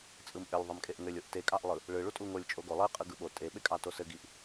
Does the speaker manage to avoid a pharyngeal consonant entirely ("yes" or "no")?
yes